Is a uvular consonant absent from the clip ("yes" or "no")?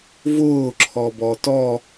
yes